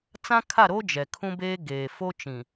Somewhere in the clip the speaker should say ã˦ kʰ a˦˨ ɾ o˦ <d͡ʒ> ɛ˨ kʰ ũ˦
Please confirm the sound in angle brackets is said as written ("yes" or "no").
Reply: yes